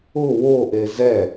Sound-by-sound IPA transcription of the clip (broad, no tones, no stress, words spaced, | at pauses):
ʊ woʔe zɛ